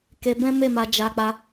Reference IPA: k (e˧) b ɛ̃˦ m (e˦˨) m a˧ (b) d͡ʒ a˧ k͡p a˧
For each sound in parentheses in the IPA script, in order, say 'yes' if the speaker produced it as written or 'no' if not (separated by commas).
yes, yes, no